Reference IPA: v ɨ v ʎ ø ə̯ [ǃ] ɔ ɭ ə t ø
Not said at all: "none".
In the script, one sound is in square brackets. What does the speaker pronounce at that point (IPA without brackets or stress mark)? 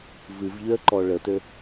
ǃ